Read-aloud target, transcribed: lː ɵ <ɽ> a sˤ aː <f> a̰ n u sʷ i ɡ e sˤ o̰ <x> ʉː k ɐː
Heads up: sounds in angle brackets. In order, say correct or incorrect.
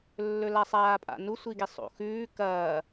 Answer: incorrect: l, incorrect: pʼ, correct

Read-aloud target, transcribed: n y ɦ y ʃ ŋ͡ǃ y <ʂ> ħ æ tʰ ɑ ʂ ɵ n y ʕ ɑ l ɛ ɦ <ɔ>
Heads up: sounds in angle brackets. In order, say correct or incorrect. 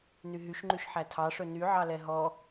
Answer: incorrect: ʃ, correct

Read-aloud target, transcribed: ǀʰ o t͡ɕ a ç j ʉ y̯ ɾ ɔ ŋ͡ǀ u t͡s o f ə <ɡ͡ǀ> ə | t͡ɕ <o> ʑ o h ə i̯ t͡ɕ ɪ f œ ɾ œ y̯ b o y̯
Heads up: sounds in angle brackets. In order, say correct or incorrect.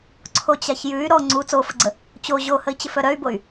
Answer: correct, correct

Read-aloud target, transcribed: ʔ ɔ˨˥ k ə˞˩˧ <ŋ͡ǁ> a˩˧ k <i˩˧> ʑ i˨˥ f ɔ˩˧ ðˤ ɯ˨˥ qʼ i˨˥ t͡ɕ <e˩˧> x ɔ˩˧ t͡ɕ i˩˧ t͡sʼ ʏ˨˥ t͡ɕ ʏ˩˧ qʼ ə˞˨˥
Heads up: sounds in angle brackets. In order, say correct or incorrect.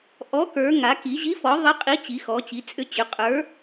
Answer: incorrect: ŋ, correct, incorrect: i˩˧

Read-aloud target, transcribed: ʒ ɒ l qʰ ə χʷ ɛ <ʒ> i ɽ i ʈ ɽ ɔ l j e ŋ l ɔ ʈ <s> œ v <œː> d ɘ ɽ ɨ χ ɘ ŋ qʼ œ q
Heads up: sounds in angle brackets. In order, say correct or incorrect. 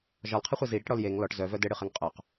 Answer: incorrect: z, incorrect: z, incorrect: œ

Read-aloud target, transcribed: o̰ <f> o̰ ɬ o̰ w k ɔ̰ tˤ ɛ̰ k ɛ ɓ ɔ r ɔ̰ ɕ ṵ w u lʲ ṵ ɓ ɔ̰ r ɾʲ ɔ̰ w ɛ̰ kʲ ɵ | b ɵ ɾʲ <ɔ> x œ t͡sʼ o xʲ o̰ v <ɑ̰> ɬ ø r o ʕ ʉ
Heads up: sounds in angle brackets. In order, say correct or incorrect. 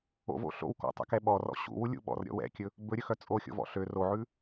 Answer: incorrect: v, incorrect: ɵ, incorrect: ɔ̰

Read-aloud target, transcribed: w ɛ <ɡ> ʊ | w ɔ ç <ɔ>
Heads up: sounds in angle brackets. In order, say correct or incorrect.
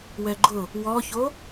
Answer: incorrect: ɡ͡ǃ, incorrect: o

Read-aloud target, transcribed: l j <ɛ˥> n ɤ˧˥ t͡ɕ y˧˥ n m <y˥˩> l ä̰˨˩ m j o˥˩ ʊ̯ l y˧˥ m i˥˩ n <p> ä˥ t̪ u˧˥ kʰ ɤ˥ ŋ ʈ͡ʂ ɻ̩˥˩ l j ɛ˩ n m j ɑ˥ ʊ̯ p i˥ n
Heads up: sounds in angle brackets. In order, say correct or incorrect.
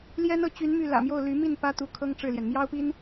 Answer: correct, correct, correct

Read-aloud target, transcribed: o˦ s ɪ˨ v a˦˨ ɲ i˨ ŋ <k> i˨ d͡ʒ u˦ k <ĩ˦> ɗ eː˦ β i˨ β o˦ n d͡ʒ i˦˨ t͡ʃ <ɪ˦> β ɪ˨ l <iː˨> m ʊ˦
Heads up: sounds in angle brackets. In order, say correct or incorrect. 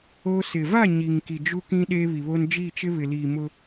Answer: correct, correct, correct, correct

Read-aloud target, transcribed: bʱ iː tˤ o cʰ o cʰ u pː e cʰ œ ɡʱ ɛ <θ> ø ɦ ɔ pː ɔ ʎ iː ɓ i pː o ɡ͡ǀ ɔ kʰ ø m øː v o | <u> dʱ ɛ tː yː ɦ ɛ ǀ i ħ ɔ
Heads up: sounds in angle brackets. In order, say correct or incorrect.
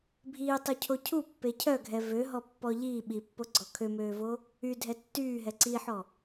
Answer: incorrect: v, incorrect: y

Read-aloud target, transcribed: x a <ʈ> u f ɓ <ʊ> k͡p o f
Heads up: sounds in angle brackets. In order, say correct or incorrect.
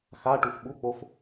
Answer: correct, incorrect: u

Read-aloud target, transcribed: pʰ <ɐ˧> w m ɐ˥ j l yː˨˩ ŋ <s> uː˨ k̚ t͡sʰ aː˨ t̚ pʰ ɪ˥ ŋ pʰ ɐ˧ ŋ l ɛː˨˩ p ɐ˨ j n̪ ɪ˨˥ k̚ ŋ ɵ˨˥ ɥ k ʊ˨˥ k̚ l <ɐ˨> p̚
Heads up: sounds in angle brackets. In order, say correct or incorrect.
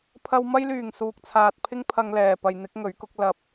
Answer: correct, correct, correct

